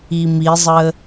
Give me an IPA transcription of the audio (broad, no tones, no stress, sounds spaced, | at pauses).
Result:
i m i zˤ ə